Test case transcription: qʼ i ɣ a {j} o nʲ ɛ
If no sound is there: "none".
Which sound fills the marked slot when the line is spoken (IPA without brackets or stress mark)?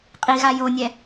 j